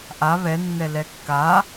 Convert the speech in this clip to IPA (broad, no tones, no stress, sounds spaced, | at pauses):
ʔ a β ɛ nː ɛ l ɛ kː a